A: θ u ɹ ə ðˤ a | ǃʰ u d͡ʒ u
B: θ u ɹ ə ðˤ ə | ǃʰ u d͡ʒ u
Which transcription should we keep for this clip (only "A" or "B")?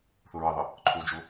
B